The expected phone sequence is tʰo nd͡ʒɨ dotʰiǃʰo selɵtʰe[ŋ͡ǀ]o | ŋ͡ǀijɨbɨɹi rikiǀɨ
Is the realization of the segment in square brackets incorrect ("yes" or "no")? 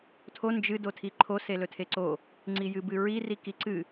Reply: yes